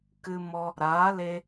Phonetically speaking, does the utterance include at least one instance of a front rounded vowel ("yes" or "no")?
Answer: no